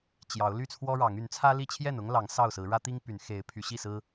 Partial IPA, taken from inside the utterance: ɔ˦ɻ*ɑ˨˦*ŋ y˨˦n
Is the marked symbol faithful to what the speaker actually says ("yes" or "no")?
yes